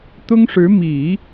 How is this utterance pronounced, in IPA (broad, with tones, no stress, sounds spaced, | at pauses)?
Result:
t̪ ʊ˥ ŋ ʂ ɻ̩˧˥ m i˨˩˦